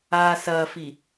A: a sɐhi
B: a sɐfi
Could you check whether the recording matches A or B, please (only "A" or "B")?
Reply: B